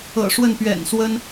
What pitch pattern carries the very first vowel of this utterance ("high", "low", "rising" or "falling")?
low